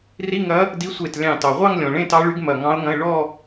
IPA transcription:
r i˧˥˧ ŋ ɐ˧˥ | d i˧˥ sʷ e˧˩ t lʲ ɑ̃˧˩ t ɑ˩ ʁʷ ɑ˥˧ ŋ lʲ ɔ̃˩ ɭ ẽ˥˧ t ɑ˧˥ ɭ y˧˥ ɡ m ɐ˧˩ ŋ ɑ̃˧˥ ʊ̯ ŋ ɐ̃˧˥˧ ɪ̯ ɭ ɔ˥˧

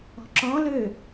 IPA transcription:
ɔ̤ ǁ ɔ̃ l ø

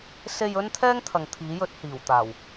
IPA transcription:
s e˧ j ɵ˥ n t̪ʰ ɛː˥ ŋ t̪ʰ ɐ˨ ŋ t̪ʰ iː˨˥ j ɵ˨˥ t̚ h iː˨˩ w t̪ aː˨˩ w

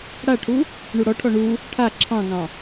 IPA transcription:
ɽ a ʈʰ u | ɳ u ɽ ɔ ʈʰ ɔ ɳ u | ʈʰ a ǁʰ ɑ̃ ŋ ɑ̃

